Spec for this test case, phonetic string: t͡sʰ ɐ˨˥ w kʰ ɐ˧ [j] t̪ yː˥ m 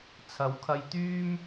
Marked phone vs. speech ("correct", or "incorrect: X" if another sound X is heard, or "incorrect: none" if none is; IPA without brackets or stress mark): correct